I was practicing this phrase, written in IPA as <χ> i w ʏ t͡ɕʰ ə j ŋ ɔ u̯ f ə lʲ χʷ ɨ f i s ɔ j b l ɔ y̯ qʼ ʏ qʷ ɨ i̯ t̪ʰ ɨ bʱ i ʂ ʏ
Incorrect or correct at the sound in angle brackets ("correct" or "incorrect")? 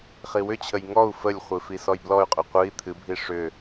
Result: correct